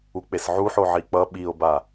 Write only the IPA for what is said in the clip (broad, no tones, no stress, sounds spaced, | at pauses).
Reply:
u k͡p e s ʕ u ħ o ʕ i k͡p ʌ ɓ i o̯ b a